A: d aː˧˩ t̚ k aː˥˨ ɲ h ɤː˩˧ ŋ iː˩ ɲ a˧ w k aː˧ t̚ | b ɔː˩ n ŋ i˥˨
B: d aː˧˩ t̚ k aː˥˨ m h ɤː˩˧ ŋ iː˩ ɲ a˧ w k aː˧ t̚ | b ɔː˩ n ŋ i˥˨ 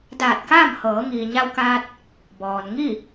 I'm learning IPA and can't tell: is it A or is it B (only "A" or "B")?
B